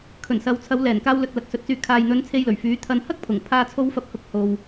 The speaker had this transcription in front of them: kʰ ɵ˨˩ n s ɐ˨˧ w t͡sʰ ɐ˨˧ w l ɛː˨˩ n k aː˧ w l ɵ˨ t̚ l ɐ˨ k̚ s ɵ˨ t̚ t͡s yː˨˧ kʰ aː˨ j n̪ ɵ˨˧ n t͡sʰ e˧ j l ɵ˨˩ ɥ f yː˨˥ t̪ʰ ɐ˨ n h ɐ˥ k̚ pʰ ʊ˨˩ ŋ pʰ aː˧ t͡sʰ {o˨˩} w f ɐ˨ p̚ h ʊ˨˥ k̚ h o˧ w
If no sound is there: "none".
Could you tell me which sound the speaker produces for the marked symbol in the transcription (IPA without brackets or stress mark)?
o˨˧